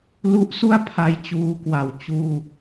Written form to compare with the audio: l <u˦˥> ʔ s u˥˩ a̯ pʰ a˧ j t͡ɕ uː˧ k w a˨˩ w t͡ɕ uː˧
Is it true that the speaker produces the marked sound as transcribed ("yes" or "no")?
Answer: yes